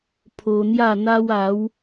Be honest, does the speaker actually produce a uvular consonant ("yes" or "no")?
no